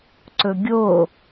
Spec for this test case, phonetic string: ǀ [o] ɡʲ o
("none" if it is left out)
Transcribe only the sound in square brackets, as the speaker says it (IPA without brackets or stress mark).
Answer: ɵ